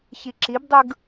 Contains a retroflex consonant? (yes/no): no